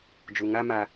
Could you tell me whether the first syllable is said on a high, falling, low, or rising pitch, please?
low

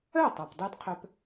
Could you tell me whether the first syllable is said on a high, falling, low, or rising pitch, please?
falling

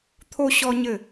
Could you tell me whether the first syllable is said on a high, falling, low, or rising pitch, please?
high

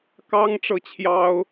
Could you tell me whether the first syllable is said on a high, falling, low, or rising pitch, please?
high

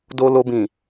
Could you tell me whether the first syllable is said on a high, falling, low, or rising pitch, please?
low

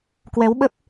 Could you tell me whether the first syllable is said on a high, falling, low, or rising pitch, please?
rising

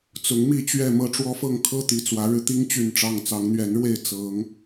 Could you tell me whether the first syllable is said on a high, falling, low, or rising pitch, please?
rising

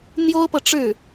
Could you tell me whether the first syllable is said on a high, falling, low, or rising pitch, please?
high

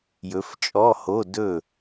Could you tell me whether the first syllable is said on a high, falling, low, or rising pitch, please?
rising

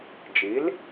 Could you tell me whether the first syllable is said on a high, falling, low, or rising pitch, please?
rising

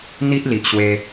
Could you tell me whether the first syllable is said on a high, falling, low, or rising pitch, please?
high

